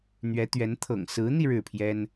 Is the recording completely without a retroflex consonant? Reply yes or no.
no